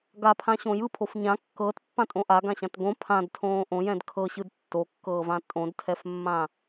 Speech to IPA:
ɡ a pʰ ã ɕ õ j ɯ pʰ o f ɲ ã kː ɤː t pː ã tʼ õ ʔ a ɡ ã ɕ ã t ɡ õ pʰ ã d tʰ õː ʔ õ j ɛ̃ d kʰ ɤ ɕ ɯ d tː o kː ɤː v ã tʼ õ d tʰ ɛ f mː ã

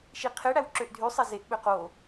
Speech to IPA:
ʃ i qʰ e ɽ æ w ǁ ø ʔ dʱ y sˤ e z e ʔ ɓ ø q o

